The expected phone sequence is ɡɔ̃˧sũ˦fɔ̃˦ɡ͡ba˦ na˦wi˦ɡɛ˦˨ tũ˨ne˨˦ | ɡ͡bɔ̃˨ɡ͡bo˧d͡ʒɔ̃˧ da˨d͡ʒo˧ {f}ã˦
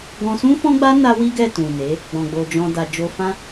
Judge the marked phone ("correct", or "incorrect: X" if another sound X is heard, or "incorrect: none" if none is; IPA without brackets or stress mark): correct